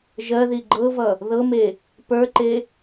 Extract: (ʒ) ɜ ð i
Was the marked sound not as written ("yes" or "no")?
no